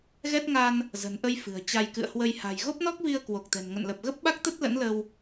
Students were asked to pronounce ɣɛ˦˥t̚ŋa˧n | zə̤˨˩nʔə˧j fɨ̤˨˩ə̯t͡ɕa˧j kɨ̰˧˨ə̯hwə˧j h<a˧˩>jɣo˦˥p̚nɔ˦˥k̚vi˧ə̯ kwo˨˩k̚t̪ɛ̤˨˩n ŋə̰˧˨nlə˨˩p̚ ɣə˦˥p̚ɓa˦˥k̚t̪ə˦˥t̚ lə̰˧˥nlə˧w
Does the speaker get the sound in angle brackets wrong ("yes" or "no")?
yes